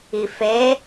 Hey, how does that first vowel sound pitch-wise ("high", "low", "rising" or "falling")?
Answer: low